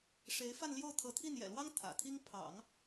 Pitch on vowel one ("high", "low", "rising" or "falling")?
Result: rising